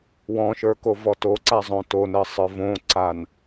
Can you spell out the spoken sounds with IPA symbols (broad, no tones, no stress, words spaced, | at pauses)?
wɔ̃ʃə˞kovɔ toǀazˤõ tonɜsˤə˞ võǀan